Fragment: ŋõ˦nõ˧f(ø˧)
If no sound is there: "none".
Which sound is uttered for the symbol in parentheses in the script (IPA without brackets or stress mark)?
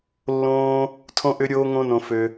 ø˧